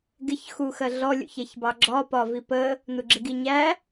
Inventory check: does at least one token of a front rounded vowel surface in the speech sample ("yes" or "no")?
no